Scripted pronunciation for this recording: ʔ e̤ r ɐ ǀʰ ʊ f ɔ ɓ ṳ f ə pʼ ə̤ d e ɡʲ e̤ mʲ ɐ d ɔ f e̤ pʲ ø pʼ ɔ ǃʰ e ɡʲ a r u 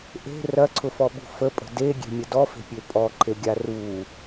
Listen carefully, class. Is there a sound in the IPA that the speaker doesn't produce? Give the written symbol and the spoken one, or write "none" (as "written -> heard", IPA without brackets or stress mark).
none